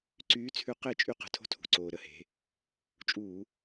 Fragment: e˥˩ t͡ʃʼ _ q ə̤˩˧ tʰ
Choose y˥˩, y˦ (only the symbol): y˦